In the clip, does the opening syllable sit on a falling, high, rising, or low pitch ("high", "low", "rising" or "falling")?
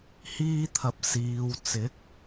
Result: high